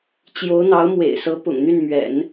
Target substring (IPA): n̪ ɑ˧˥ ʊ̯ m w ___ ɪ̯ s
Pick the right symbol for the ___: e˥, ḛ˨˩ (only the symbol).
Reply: ḛ˨˩